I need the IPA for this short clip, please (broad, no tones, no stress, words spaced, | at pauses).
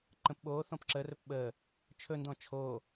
ǃə̃p ɓoː θɔ̃pǁərɵp ɓəː | t͡ʃʰɵndɔ̃ t͡ʃʰoː